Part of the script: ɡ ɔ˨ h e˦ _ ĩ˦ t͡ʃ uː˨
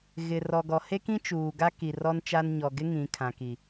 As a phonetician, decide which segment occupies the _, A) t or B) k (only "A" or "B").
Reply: B